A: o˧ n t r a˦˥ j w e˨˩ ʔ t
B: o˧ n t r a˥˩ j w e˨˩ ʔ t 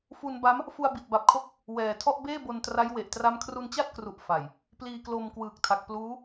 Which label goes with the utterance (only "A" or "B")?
A